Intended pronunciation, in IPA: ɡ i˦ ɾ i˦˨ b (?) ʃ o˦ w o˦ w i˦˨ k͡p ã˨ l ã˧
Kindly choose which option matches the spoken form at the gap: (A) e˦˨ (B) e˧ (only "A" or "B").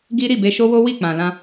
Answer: B